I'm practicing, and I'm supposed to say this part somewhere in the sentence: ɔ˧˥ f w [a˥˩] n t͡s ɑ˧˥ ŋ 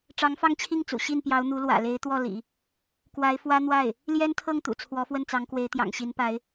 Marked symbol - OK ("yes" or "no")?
no